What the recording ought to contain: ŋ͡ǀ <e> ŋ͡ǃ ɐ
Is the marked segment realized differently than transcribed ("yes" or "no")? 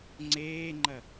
yes